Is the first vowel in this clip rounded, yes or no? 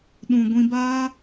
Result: yes